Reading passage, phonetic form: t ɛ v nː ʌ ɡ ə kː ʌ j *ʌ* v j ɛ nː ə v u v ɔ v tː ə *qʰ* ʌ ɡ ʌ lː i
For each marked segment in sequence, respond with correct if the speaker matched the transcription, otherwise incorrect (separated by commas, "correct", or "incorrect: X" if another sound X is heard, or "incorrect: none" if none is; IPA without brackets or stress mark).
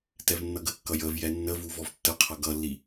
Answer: incorrect: ə, correct